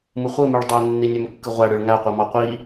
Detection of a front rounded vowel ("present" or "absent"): present